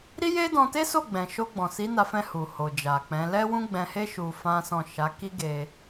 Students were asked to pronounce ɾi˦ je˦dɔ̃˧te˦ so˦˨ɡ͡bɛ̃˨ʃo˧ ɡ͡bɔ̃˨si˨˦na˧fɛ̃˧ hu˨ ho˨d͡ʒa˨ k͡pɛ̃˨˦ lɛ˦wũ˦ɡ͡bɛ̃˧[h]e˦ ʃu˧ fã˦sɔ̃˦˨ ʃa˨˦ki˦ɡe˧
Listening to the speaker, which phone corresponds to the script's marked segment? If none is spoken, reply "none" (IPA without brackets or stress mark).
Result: h